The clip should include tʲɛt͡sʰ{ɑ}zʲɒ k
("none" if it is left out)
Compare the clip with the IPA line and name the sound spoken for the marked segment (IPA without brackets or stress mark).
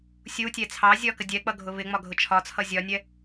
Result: ɑ